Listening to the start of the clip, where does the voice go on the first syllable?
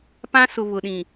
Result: high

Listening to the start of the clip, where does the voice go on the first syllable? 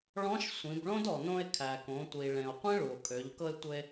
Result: rising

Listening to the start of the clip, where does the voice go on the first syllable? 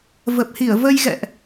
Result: low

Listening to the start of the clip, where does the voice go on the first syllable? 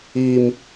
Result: low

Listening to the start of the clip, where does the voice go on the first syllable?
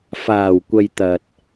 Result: low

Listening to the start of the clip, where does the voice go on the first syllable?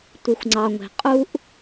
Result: low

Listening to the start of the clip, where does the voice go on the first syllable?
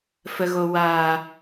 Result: low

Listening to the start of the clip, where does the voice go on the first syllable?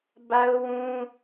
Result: high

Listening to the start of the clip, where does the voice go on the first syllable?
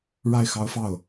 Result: falling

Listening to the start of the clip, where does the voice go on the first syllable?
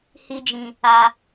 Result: high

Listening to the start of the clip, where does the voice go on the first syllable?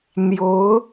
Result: rising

